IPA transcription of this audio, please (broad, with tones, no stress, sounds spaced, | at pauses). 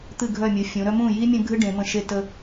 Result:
t̪ ɨ˦˨ ɡʱ œ˦˨ mʲ u˩˧ fʲ ũ˩˧ ɾ œ˦ m ũ˦˨ j i˦ mʲ ə̃˦ ɡʱ ɨ˦ ɖ ẽ˩˧ m ə̃˦˨ ʃ e˦ t ə˦